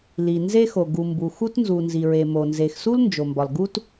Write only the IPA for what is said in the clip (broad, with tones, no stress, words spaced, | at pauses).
li˩ nze˦xo˩ ɡu˩mbu˩xu˦tnzu˩ nzi˩ɹe˩mo˩ nze˩xsu˦l nd͡ʒo˩mbɒ˩l ɡu˦t